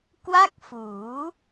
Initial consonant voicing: voiceless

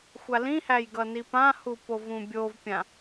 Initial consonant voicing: voiceless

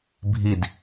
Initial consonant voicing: voiced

